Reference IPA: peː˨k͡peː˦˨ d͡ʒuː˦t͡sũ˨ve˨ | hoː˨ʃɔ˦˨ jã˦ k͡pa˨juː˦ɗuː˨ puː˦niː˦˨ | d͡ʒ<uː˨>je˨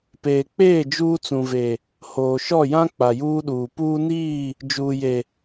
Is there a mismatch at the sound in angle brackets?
no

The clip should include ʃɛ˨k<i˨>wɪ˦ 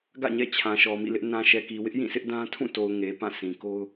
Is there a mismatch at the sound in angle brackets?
no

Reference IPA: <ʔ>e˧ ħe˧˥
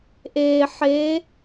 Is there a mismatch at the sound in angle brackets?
no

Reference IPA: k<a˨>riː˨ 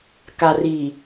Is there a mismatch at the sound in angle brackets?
no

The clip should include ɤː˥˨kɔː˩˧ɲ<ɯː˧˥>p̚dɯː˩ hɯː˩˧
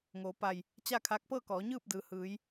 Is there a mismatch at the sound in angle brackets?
yes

